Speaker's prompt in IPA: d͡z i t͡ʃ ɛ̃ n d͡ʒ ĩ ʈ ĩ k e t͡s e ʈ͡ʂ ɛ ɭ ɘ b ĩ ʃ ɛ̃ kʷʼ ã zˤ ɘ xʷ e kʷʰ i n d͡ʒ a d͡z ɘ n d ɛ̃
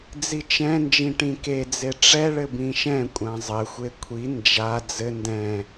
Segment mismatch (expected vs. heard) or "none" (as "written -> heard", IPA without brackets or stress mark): t͡s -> d͡z